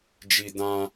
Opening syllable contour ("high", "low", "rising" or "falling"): high